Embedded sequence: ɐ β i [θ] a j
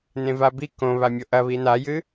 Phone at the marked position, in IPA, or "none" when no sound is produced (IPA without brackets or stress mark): n